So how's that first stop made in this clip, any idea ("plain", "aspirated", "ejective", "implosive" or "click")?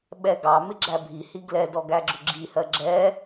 implosive